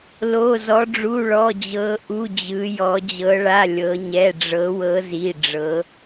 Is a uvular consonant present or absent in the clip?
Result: absent